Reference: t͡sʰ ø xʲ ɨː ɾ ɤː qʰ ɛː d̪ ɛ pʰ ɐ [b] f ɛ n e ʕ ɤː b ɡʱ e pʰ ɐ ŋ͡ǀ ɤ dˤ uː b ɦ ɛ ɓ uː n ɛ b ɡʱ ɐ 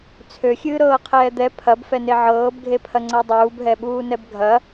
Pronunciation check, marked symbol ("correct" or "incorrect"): correct